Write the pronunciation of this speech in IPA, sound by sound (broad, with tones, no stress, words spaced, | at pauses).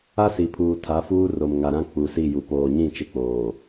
a˦si˨ pʰuː˨tʰa˨˦fuː˦ ro˨mŋa˨ɾã˦ k͡pu˨si˦˨ ju˨ poː˨ɲĩ˦˨ t͡ʃɪ˦k͡poː˨